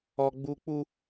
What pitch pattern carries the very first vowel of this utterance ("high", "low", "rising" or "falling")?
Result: high